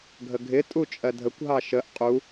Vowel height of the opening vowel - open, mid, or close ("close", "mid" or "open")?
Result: mid